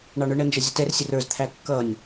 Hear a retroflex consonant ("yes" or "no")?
yes